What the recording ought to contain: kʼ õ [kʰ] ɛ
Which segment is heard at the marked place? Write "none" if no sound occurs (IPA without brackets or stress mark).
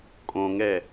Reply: ŋ